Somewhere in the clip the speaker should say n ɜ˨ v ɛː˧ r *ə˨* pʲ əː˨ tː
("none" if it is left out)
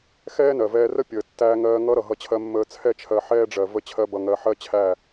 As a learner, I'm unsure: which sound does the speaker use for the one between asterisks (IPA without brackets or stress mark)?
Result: ə˦